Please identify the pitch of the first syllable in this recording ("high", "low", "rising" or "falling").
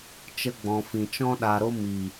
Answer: high